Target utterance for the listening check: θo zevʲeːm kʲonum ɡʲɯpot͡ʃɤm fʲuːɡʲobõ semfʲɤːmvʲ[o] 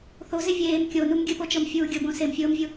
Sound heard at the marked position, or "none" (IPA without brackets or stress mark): u